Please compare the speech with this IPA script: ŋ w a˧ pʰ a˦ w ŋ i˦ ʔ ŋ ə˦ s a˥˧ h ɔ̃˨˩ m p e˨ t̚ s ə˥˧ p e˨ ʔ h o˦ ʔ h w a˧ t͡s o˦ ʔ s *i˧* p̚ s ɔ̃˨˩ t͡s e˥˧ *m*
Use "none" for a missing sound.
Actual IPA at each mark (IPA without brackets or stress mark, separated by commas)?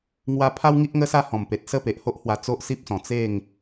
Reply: i˦, ŋ